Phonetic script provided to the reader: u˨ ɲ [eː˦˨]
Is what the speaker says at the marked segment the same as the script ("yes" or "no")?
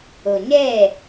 yes